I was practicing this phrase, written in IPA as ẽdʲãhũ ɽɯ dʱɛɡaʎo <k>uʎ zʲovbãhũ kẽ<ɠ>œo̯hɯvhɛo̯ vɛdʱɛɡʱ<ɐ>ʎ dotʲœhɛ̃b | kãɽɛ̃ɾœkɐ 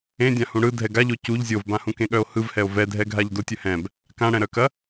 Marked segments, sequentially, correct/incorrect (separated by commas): incorrect, correct, incorrect